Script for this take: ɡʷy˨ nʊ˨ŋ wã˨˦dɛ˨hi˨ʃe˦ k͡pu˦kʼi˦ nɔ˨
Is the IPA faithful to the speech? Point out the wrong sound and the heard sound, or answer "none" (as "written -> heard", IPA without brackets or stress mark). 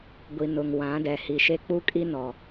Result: y˨ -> i˨